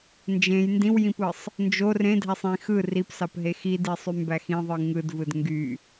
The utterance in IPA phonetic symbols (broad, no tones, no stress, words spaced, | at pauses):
nd͡ʒẽj ndĩwjĩpɯsˤ | nd͡ʒor ẽdʱæsˤ ĩ xɯ ripsɑpɦe xidisˤymbæ xĩðˤɯ ŋɯdvɯd ŋɡy